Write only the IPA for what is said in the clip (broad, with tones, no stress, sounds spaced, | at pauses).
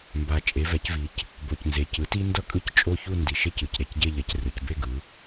m b a˨˩ t͡ʃʼ e˩˧ v ɛ˩˧ c v i˩˧ c | b o˨˩ c n z e˨˩ c ɯ˩˥ t i˦ n d ʌ˦ kʼ ɯ˦˨ c t͡ʃʼ o˦˨ ç u˦˨ n d i˨˩ ʃ e˦˨ c ɯ˨˩ c ɾ e˨˩ c ɟ e˦˨ ʎ ɛ˩˥ c r ɯ˩˧ c b e˦˨ ɡ ɯ˩˧